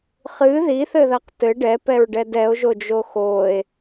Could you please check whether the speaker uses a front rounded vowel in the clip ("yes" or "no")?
no